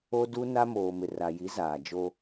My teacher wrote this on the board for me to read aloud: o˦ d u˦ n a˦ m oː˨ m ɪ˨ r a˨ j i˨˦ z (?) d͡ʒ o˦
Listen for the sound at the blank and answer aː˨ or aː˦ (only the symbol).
aː˨